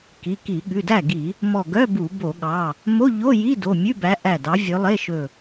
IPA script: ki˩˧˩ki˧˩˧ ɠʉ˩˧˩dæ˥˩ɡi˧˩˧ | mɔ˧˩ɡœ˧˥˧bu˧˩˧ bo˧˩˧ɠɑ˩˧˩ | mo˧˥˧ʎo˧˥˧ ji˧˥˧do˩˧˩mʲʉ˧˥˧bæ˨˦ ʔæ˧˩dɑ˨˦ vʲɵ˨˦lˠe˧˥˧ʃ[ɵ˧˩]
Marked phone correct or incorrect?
correct